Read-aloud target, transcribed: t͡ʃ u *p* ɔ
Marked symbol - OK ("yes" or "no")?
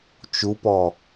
yes